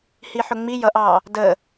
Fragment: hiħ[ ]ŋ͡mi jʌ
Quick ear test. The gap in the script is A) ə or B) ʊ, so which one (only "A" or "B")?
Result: B